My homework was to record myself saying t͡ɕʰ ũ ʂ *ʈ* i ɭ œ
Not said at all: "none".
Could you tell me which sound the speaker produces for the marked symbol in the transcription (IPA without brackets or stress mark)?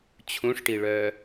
ʈ